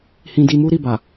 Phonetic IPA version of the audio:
hĩ˧di˧mu˦ ɾi˦˨ba˨

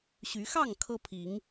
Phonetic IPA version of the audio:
ɕy˨˦ xɑ˥˨ŋ kʰɤ˦pʰi˨˦ŋ

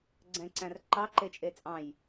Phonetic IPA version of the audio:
ɡ͡ǀɛ̃ǀæ̃r ǃɑǃet͡ʃʼe t͡sʼɑ̃j

